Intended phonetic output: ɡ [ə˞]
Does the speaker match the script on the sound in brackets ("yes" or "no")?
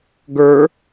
yes